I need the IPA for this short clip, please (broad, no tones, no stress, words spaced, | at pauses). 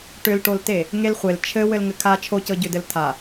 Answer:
ʈʏlʈolte | ŋelχʷel t͡ʃʰɘ wɘlŋɘkʰa t͡ʃʰocɤɟʏdɘl tʰa